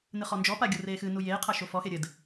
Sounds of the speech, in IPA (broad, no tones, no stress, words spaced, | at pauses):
nɨχɔnd͡ʒɔpa ɡʲureːxɨnu jeːqʰa ʃofɔxe ɾʲɘd